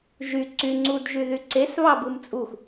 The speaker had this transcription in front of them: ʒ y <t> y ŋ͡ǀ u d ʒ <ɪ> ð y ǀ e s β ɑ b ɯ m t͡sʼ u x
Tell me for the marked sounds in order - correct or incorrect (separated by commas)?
incorrect, incorrect